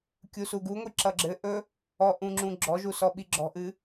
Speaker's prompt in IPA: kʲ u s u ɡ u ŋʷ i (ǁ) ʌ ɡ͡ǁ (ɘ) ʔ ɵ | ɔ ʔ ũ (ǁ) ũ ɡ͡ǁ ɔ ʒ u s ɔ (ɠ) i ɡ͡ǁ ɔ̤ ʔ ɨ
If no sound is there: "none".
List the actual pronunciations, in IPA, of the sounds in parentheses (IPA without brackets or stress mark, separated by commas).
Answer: ǁ, ɘ, ŋ͡ǁ, ɓ